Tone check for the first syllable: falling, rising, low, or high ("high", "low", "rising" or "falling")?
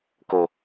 low